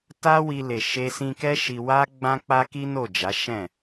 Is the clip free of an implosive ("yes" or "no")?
yes